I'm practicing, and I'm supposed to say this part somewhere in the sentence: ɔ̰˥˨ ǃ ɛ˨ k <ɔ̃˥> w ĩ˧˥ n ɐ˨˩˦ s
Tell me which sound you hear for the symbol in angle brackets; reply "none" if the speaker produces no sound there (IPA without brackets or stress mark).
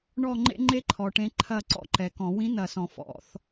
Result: ɔ̃˨˩˦